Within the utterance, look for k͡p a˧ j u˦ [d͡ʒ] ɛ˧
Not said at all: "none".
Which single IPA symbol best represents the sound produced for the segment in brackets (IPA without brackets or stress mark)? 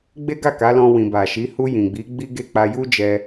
d͡ʒ